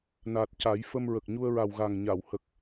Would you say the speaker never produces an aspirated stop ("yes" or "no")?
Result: yes